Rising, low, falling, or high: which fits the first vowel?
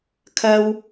high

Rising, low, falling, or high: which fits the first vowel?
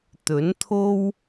rising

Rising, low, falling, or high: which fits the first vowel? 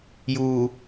low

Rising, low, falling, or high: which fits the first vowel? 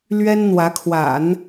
high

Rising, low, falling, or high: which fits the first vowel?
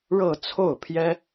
falling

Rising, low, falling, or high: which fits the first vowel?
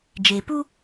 low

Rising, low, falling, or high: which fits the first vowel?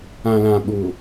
low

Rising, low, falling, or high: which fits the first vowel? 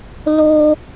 high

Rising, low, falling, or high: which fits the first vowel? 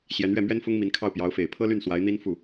rising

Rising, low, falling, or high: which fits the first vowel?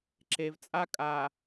low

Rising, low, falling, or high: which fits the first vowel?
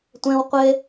high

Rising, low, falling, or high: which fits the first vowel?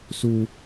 high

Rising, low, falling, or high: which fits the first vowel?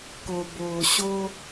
low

